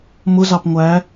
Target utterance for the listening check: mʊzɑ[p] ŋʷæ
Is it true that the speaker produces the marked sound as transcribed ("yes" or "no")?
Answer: yes